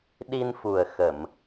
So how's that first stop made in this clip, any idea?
implosive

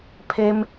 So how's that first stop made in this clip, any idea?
aspirated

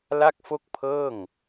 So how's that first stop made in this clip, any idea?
plain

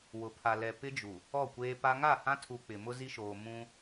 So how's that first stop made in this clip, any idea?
aspirated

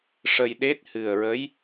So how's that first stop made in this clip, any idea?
implosive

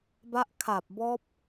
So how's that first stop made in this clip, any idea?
plain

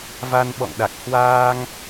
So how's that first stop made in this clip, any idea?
implosive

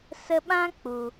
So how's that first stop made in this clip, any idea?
implosive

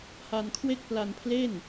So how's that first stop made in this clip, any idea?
aspirated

